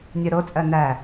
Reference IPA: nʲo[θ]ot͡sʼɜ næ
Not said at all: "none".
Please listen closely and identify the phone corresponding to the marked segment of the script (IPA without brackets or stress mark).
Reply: ɾ